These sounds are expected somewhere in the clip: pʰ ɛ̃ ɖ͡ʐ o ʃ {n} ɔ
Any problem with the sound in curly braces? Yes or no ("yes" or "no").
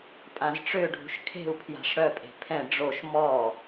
yes